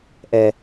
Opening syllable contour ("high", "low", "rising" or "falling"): low